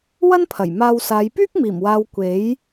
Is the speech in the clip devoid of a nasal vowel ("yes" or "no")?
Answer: yes